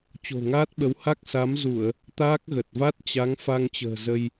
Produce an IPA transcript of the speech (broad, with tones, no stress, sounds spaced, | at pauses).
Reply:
t͡ɕ o̤˨˩ ŋ aː˦˥ t̚ ɓ ə˨˦ w h a˦˥ k̚ s a˨˦ m z u˧˩˨ ə̯ | t̪ aː˦˥ k̚ ɣ ə˨˩ t̚ v a˦˥ t̚ t͡ɕ a˨˦ ŋ f a˧ ŋ t͡ɕ ə̤ː˨˩ z ə˧ j